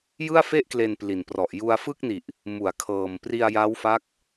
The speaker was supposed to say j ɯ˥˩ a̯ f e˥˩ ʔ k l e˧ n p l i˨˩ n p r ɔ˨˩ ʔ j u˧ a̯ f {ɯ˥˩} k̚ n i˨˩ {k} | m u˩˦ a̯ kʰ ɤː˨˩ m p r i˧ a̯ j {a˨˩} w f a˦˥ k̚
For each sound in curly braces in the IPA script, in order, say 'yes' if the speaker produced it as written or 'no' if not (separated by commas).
yes, no, no